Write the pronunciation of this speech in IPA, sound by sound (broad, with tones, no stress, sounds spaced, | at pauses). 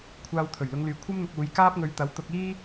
kʷʰ aː˧ w t̪ʰ ɵ˨˩ ɥ l ʊ˨˧ ŋ l yː˨ kʷʰ ɐ˥ m n̪ ʊ˧ k̚ uː˨˧ j k aː˥ p̚ ŋ ɵ˧ ɥ t̪ ɐ˨˥ w t̪ ʊ˧ k̚ iː˥